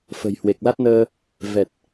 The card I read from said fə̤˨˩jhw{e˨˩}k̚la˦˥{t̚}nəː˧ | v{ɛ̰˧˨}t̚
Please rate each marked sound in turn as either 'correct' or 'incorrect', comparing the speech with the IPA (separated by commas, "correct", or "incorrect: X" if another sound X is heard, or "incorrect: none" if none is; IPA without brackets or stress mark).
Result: correct, correct, incorrect: ɛ˨˩